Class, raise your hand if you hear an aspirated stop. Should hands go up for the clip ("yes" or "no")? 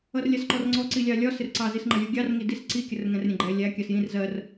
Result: no